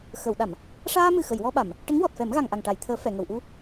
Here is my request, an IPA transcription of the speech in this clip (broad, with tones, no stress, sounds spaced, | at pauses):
x ə˨˩˨ w ɗ a˨˩˨ m | ʂ aː˧ m ɨ˨˩ x ə˨˩˨ j w ɔ˧ ɓ a˨˩˨ m | ʈ ə˧˥ ŋ w ɔ˨˩ t̚ f ɛ˨˩˦ m ɣ a˨˩ ŋ ʔ a˨˩ ŋ ʈ a˨˩˨ j t̪ʰ əː˨˩˦ f ɛ˨˩˨ ŋ ə˨˩˨ w ʔ u˧